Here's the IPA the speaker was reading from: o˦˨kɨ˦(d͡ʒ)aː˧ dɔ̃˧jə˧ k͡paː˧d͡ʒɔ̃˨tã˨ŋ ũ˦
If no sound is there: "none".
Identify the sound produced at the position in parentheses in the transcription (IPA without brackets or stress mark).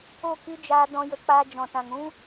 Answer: d͡ʒ